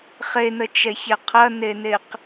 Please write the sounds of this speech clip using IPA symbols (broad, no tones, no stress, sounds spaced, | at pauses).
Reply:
χ e n ə t͡ʃ ɛ ç ɛ qʰ ɐ n e n e q